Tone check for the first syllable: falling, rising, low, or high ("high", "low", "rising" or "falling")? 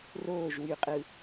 falling